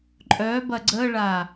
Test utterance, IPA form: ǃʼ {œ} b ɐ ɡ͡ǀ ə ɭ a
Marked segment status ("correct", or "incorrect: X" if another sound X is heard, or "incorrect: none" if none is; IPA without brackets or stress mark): correct